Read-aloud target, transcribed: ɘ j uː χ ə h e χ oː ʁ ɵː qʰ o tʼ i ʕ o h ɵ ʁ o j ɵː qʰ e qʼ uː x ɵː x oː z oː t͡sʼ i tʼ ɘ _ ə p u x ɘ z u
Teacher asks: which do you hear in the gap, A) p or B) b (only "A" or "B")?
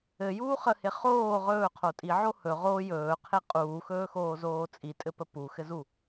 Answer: A